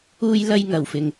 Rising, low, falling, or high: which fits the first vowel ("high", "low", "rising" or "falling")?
high